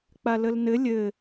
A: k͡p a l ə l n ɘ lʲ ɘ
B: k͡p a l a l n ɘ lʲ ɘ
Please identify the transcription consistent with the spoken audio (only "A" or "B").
A